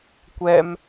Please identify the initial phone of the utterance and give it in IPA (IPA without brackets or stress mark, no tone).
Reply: kʷ